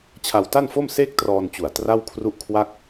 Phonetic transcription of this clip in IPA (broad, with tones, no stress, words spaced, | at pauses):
t͡ɕʰa˧wta˥˩nfo˥˩mseː˥˩k̚ trɔː˧nt͡ɕu˨˩a̯ tra˥˩wkʰru˥˩ʔkʰwa˥˩k̚